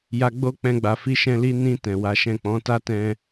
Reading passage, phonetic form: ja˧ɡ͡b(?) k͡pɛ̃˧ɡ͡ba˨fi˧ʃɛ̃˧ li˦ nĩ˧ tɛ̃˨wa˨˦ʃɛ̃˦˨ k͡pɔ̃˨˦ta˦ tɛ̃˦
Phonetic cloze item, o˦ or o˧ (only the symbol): o˦